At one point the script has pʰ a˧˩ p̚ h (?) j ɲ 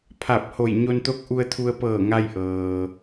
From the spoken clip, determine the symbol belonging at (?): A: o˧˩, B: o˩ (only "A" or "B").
A